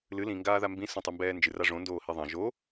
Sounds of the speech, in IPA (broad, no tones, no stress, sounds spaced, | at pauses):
l ɨ l ĩ ŋ ɡ aː ð a m b ĩ s õ tˤ i m b ɛː n d͡ʒ ɨ r a ʐ õ n d oː h i ðˤ ɐ̃ ʒ o